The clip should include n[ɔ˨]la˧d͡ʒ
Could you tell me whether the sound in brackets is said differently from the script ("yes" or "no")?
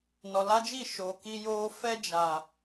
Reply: no